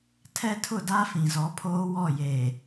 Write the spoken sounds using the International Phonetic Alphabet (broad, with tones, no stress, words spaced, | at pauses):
tʰɛ˦tʰʊ˦˨da˦ fĩ˨zɔ˨˦pʰoː˦wɔ˦˨ je˨